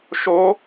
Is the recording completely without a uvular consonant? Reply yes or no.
yes